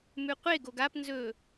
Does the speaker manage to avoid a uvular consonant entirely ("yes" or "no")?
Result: no